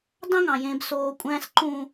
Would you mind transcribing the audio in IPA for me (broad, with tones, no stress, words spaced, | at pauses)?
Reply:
dɑ̃˦ŋɑ̃˨ jẽː˨bsoː˨kʷʼæ̃ː˦sǃũː˦